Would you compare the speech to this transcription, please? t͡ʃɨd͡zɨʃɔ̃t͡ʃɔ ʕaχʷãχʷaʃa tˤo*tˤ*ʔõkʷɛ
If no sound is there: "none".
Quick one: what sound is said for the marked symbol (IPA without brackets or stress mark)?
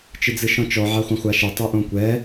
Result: none